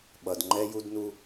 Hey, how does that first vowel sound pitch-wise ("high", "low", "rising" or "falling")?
low